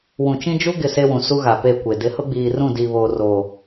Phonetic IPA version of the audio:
w ũ˨ t͡ʃ ĩ˦ d͡ʒ u˦ ɡ ɪ˦˨ s e˦ w ũ˨ s u˦ ɣ a˨ p e˦˨ kʷ e˨ d ɪ˨˦ h ʊ˦ ɡ͡b iː˨ r ũ˦˨ d iː˨ β oː˨ r oː˨

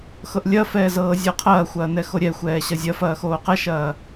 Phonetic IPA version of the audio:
x ɤ ʔ lʲ ɐ f ɛː z ɤː zʲ ɤ qʰ ɐː xʷ ɐː n ɛ x o ɾʲ ɛ xʷ ɛː ɕ ɐ zʲ ɐ f ɐː x oː q ɛ ʃ ɐː

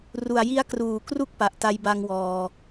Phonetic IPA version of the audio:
r u˨˩ a̯ j i˦˥ a̯ k r uː˨˩ k r u˥˩ k̚ p a˨˩ ʔ t a˧ j b a˧ ŋ w ɔː˧

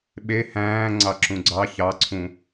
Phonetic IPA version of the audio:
ɓ e h æ̃ː ŋ͡ǀ ɑ ǁ ũ ɡ͡ǀ ɑ ç ɑ ǀʰ ũ

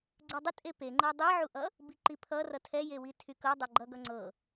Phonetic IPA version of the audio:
ɡ͡ǀ ɤ dˤ ə tʼ e p e ŋ͡ǃ ɤ dˤ i ʕ u ʔ ʌ | b i ǃ i pʰ ʌ r ʌ tʰ ɛ j e w i tʰ y k ɤ dˤ ɤ ɡ͡ǃ ʌ ɡ ʌ ŋ͡ǀ ɤ

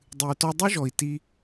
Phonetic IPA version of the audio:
dˤ ɨ˨ u̯ t ɔ˧ dˤ u˦ ʒ ɔ˨ i̯ t i˧

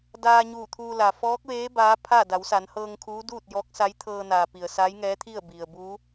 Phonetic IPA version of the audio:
d aː˧ ɲ uː˧˩ t̪ʰ uː˧ l a˩ f ɔː˧˥ k̚ ʋ eː˧˥ b aː˧˥ pʰ a˥˨ d a˩˧ w s a˩˧ n h ɤː˧ ŋ kʰ uː˧˥ d uː˥˨ t̚ j ɔː˧˥ k̚ s a˧˥ j t̪ʰ ɤː˧ n aː˩ p i˩ ə̯ s a˧˥ j ŋ ɛː˧˥ t̪ʰ i˥˨ ə̯ b i˩ ə̯ b uː˧˥

